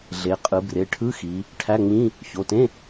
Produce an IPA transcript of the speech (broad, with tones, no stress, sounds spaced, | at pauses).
ɮ e˩˧ qʼ ɯ˩˧ b r e˩˧˩ ʈʰ ɯ˧˥˧ x i˩˧ | ʈʰ æ˧˥˧ ŋ͡m ĩ˧˥˧ | ç o˩˧˩ t ẽ˧˥˧